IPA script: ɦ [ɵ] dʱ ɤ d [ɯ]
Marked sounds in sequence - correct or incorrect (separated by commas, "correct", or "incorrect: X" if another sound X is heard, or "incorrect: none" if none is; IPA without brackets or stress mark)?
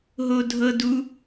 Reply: incorrect: o, incorrect: u